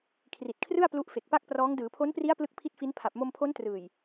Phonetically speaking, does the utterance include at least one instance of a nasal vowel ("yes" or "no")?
no